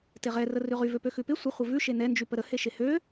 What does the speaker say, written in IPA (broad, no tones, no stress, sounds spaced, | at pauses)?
t e ʁ ɛ r ə r ʉ ʁ y v ø p ø x ʉ p ɪ sʷ ɪ χʷ ɪ v ʉ ʃ e n ɛ n d͡ʒ y p ə ɾ ə h e ʃ e h ø